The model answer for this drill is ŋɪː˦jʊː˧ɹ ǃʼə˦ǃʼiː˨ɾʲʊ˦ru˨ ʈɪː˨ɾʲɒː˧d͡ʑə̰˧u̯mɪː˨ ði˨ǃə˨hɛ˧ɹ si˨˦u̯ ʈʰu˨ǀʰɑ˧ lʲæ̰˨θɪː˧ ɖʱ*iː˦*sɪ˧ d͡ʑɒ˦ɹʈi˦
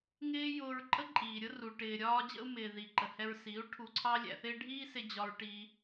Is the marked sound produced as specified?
yes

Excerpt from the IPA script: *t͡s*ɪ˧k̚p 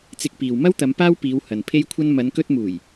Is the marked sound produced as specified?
yes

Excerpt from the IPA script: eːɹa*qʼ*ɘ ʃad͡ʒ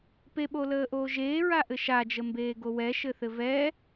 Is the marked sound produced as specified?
no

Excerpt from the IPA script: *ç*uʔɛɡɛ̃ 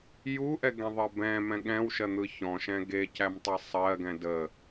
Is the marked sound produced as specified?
no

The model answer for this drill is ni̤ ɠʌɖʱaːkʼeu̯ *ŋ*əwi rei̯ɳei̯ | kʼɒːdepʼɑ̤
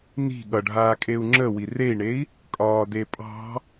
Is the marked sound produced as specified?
no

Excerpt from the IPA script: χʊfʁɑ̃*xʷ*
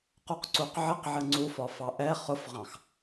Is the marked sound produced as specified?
no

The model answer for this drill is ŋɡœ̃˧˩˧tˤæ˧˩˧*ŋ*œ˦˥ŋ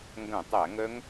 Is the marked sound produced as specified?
yes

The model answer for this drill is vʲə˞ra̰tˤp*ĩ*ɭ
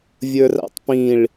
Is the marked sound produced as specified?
yes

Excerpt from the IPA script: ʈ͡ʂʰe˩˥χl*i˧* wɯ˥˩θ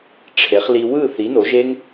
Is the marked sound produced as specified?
yes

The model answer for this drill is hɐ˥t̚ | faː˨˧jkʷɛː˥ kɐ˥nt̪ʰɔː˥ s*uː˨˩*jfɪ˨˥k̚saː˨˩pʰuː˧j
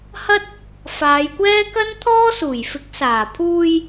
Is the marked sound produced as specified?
yes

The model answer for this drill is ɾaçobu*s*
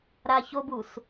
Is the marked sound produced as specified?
yes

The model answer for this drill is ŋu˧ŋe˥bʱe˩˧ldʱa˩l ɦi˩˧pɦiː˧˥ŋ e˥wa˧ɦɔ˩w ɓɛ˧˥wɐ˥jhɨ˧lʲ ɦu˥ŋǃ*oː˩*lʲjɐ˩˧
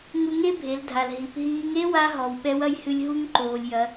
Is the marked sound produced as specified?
yes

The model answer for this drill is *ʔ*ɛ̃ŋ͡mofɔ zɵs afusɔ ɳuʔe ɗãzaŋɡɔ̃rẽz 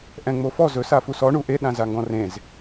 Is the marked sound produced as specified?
yes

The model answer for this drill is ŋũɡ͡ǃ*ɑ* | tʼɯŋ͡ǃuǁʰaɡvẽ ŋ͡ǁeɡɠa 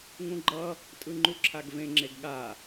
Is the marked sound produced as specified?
no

